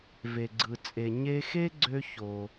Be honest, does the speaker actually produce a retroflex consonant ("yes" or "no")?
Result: no